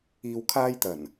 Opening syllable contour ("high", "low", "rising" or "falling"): low